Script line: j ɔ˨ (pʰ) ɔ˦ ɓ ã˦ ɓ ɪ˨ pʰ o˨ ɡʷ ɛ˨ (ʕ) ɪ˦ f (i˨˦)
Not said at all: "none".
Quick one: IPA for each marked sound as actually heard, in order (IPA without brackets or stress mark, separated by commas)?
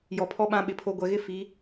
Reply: pʰ, ɣ, i˨˦